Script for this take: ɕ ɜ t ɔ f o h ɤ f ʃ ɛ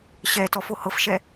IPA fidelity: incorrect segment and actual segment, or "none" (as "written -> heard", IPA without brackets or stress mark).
ɜ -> ɛ